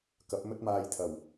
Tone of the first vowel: rising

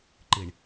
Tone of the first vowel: low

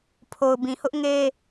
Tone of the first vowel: low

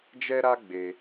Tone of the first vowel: high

